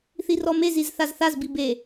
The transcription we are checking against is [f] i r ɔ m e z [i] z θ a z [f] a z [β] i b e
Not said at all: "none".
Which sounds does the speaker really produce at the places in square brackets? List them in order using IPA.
θ, i, θ, b

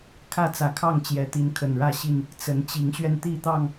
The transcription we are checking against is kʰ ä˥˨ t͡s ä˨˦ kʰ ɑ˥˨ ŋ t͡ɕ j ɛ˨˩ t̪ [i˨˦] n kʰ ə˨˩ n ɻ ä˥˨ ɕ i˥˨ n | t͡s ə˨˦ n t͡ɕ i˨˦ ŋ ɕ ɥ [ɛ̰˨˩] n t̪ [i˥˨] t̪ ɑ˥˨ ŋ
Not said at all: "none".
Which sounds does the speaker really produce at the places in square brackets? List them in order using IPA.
i˨˦, ɛ˧, i˥˨

